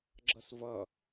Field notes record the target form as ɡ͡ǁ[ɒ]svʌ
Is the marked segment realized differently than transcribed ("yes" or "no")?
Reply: yes